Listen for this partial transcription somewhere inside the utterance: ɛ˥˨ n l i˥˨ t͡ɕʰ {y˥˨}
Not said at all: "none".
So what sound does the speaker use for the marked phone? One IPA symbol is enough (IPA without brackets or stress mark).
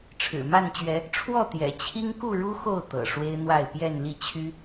y˦